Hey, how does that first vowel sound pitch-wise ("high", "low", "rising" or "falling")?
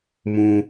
low